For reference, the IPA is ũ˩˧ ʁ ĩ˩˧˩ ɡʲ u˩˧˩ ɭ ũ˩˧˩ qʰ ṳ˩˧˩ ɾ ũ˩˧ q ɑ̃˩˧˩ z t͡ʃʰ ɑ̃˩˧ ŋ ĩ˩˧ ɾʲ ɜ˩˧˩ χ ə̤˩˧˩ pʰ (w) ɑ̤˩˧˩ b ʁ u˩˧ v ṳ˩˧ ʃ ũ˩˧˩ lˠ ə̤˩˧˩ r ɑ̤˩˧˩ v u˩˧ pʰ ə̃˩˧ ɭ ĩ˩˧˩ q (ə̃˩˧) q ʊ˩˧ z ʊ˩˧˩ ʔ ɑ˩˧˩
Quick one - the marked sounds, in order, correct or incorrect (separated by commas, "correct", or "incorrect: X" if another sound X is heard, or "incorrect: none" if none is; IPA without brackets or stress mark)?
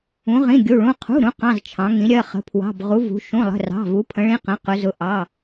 correct, correct